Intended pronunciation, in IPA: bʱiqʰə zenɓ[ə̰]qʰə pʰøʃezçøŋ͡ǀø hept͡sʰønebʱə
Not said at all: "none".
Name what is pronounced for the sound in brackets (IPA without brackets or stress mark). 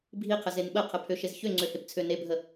ə